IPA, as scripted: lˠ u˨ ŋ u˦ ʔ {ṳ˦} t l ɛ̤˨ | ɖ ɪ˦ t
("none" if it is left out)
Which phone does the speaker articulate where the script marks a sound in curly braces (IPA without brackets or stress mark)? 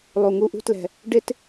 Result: ṳ˦